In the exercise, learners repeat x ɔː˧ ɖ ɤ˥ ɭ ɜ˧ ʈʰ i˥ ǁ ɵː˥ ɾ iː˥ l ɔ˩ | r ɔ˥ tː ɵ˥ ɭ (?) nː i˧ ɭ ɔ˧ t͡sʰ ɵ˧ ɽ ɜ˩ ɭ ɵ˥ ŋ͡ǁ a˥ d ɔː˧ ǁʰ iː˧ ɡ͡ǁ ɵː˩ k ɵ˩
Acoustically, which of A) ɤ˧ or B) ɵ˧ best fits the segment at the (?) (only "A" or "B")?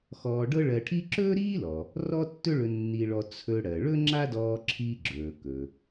B